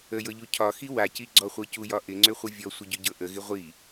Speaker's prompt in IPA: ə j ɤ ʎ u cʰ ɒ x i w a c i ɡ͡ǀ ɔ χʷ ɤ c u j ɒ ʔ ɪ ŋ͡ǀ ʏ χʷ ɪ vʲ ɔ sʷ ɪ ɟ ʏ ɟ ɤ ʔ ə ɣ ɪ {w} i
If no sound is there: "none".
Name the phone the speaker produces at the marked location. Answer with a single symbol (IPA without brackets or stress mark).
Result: ʁʷ